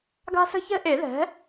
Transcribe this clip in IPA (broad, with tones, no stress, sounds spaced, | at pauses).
ɡ a̤˥ s ə̤˥ ç ɛ̤˥ ʔ e˨˩˦ ð ɛ̤˩˥